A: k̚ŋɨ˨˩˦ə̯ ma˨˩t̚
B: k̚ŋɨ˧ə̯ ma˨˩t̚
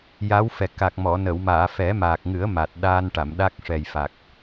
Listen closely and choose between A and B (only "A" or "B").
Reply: A